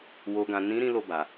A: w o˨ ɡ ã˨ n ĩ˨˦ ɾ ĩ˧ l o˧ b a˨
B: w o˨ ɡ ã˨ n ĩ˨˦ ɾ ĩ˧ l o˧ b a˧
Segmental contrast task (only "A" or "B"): A